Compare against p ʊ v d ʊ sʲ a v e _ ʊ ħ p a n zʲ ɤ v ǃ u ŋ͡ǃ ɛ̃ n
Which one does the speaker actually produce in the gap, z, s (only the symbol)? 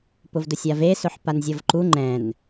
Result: s